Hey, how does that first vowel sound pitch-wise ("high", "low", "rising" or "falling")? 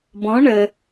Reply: rising